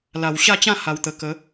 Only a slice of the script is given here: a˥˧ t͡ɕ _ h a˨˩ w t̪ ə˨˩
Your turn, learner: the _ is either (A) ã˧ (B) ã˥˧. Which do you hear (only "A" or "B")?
B